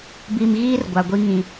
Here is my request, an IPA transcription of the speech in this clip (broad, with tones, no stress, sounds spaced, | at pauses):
b i˨ m ɣ iː˦ r ɡʷ a˨ ɡʷ i˦ ŋ ĩ˨